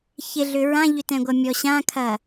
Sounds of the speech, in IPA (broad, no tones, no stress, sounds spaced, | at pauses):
ç ɪ ɮ ʏ ɹ ã ʎ ʏ t ɛ̃ ɡʷ ɐ mʲ ɔ ɕ ã kʰ ɐ